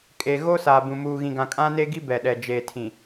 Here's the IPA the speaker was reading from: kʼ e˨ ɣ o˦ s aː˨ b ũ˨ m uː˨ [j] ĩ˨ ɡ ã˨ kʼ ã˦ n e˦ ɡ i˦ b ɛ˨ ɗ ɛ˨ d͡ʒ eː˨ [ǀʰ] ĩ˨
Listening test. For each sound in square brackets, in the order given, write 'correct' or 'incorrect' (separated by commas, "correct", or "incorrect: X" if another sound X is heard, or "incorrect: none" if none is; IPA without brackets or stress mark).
incorrect: ɣ, incorrect: tʰ